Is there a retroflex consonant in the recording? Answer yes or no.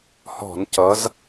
no